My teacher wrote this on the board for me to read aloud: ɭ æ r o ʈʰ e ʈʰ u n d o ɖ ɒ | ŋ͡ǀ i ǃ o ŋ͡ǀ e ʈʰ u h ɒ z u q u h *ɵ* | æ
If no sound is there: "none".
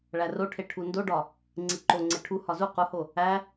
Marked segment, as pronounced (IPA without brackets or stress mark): o